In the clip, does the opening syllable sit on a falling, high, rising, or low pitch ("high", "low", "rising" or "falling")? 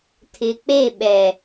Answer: low